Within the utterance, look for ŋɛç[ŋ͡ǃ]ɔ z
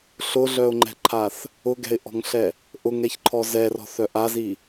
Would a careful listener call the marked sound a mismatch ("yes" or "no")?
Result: yes